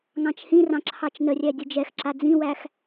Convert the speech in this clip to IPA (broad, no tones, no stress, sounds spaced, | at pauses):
ŋ ɑ̃ t͡ʃ h ĩ r ɑ̃ ǁʰ ɑ t͡ʃ n ə rʲ æ dʲ ə d͡ʒ ɛ x ǁ a d͡z ĩ w æ x